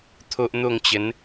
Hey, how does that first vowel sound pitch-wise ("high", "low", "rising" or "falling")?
high